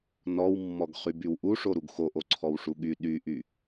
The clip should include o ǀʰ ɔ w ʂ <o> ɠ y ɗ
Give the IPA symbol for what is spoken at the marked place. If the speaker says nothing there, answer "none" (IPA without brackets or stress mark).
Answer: u